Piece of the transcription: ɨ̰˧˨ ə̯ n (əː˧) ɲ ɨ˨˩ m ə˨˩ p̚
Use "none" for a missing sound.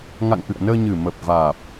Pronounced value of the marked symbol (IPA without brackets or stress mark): əː˧